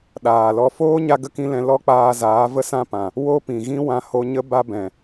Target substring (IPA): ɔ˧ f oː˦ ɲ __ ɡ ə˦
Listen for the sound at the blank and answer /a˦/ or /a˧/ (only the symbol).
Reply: a˦